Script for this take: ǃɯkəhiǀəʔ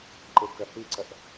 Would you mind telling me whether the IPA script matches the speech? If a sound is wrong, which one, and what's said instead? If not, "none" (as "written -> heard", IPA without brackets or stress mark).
none